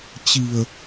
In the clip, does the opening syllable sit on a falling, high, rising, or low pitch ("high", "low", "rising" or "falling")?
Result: low